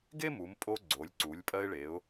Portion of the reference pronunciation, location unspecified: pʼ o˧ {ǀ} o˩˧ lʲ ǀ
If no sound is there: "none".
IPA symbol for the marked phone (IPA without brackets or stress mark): ɡ͡ǀ